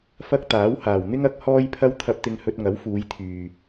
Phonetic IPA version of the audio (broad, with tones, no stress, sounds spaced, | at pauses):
f ɐ˥ k̚ t̪ aː˨˥ w h aː˨˩ w n̪ ɪ˥ ŋ ɐ˨˥ k̚ h ɔː˥ j pʰ ɐ˥ w t̪ʰ ɐ˧ p̚ t̪ ɪ˧ ŋ h ɵ˧ t̚ ŋ ɐ˨˥ w f uː˨˧ j t̪ʰ yː˨